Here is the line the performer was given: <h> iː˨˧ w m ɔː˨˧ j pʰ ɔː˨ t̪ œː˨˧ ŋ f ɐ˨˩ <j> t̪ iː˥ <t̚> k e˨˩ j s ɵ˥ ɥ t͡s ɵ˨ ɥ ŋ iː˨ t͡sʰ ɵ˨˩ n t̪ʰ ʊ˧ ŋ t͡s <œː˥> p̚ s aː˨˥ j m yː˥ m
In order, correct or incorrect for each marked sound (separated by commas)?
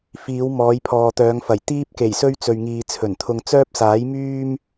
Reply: incorrect, correct, incorrect, correct